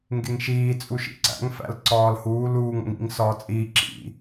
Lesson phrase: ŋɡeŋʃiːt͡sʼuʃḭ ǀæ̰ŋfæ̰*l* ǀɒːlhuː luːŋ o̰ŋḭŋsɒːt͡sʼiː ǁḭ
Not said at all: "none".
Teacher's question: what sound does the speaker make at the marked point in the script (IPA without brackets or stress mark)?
l